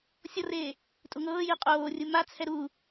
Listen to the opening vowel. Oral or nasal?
oral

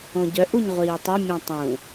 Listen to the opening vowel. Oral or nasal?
nasal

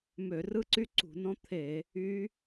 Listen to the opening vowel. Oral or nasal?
oral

